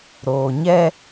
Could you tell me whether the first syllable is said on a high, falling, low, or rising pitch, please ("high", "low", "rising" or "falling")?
low